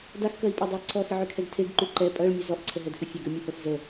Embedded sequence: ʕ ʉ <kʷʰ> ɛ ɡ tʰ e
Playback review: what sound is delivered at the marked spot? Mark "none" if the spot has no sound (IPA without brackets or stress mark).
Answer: kʰ